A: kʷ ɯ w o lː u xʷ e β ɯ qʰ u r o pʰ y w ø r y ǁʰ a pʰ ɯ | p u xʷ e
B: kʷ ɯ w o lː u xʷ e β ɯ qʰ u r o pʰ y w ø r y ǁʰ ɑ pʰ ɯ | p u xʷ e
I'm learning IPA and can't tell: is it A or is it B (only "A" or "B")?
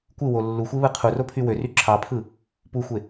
B